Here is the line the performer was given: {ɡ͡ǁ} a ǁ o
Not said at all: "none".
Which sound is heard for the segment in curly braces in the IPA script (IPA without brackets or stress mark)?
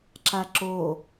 ǁ